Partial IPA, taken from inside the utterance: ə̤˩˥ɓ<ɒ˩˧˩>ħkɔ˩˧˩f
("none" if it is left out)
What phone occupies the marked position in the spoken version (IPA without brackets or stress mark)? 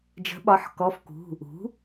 ɒ˩˧˩